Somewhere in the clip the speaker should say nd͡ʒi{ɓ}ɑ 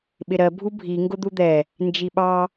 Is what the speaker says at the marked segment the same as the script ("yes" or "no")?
yes